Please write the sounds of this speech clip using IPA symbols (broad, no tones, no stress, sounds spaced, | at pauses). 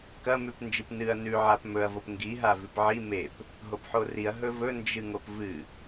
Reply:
k ɐ m ʉ p n d͡ʒ ɨ p n ɨ ɐ̯ n ʉ ʕ a p m ɵ ɐ̯ v o p ŋ ɡ i ɦ a v ʉ p ʕ i m e p | ɦ o p ħ o r i ɐ̯ ɦ ɵ v ɵ n d͡ʒ ɨ ŋ o p v ɨ